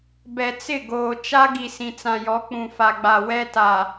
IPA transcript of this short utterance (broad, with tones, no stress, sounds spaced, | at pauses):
b ɛ˨ t͡s ɪ˦˨ ɡ oː˨ t͡ʃ a˦ ɡ i˨ s ĩ˨ t͡s ã˨ j ɔ˨˦ k͡p ũ˨ f a˨ ɡ͡b a˨ w ɛ˦ t a˨